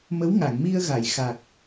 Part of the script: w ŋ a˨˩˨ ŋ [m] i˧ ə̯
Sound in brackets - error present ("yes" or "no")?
no